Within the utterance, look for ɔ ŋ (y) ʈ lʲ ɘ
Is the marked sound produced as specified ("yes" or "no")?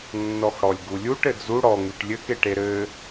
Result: yes